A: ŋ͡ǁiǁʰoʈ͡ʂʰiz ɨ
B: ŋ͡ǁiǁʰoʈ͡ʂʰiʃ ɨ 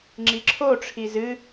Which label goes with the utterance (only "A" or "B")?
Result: A